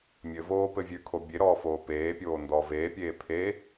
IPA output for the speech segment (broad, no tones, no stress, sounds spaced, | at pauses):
mʲ ɘ v oː p ɘ vʲ ʉ kʰ o bʲ e ɾ ɔː f oː p eː pʲ oː n d ɔː v eː pʲ eː pʰ e